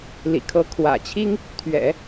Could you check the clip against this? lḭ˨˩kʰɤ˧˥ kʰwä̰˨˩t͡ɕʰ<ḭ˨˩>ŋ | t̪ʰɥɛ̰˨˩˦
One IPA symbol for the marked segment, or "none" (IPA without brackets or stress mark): i˥